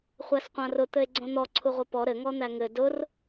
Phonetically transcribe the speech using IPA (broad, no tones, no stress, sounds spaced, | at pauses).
χʷ æ s qʷ ã r ʊ t̪ ɘ e̯ ɡ͡ǀ õ n̪ ɔ ǀʰ u ʁʷ ɘ p ɔ ɾ ɘ ŋ ɔ n̪ æ ŋ ɘ d ʊ r